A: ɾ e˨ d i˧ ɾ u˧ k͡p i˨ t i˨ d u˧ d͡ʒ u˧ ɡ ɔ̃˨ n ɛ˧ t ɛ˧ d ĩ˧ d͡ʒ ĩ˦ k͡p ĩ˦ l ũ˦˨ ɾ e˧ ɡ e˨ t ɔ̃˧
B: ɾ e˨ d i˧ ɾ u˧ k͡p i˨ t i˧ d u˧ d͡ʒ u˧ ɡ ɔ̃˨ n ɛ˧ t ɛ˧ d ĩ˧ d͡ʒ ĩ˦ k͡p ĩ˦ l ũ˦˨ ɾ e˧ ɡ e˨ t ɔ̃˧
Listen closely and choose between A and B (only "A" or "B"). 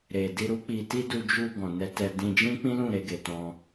B